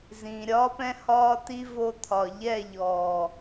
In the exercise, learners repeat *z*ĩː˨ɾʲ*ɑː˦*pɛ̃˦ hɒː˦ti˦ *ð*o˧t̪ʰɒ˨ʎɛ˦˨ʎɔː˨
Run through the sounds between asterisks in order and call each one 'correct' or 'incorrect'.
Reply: correct, incorrect, incorrect

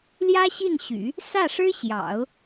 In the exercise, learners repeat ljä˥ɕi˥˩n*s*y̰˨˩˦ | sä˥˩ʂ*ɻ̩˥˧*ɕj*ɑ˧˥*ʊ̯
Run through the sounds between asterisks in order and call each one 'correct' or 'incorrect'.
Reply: incorrect, incorrect, incorrect

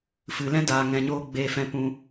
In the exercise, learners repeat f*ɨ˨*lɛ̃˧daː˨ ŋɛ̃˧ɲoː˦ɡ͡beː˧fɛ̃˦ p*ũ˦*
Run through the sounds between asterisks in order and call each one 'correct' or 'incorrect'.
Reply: correct, correct

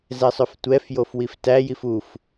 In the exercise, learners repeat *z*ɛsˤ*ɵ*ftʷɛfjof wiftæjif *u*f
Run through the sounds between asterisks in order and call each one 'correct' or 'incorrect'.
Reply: correct, correct, correct

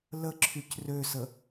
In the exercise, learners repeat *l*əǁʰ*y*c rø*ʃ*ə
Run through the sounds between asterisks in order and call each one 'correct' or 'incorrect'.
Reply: correct, correct, incorrect

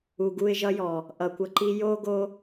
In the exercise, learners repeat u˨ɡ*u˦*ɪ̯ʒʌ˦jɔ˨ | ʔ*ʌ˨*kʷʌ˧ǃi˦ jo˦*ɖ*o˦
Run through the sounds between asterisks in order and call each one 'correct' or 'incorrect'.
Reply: incorrect, correct, incorrect

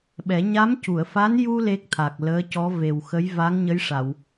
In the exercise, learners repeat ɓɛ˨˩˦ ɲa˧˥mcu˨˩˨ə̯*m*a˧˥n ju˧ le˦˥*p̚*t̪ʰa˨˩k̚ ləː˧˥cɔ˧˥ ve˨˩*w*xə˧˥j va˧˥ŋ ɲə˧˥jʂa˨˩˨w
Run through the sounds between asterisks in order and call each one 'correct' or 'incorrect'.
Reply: incorrect, incorrect, correct

